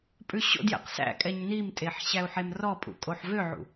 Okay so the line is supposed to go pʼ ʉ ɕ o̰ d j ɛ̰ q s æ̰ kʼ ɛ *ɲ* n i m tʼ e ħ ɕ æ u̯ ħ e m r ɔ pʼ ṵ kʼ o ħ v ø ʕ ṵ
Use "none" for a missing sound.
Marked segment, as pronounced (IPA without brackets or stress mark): ɲ